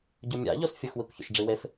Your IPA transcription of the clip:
ɟ ʊ mʲ a̰ ʎ o s fʲ ʊ x w i kʷ ç o̰ ʃ ɖ͡ʐ i w e f

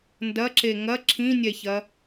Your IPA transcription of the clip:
n d ɐ ǁ e ŋ ɐ ǁʰ ĩ nʲ ɛ ç ɐ

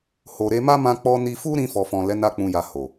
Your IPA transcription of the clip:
h o˨ ɾ e˧ m a˦ m ã˧ k͡p ɔ˧ n i˧ f u˦ ɾ ĩ˧ f ɔ˨ f ɔ̃˨ l ɛ˨˦ n a˧ k͡p ũ˨ j a˨ h o˨

